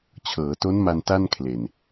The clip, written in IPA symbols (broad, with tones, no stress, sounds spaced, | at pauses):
t͡ɕʰ ɤː˩˦ t o˦˥ n m a˧ n t a˥˩ n kʰ l e˨˩ n